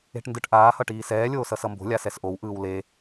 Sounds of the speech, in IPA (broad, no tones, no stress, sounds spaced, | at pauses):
e̤ ʈ n d ɯ ʈ ʔ aː h ʌ ʈ iː s ɛː lʲ oː s ʌ s ʌ m b o̤ lʲ a s ɛ s ʔ o w ʔ ɯː w l e